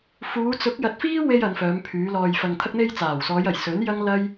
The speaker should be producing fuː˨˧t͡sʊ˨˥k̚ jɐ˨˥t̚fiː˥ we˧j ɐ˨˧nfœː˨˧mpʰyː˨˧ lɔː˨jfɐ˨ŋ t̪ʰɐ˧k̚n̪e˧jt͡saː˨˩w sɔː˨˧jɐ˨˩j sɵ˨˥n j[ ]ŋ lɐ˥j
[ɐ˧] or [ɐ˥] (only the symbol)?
ɐ˥